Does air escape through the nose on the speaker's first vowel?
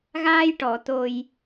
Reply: no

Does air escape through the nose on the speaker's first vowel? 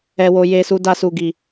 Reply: no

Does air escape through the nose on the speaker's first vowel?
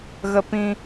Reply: no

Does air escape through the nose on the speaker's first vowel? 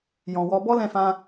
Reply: yes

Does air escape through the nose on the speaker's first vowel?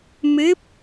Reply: no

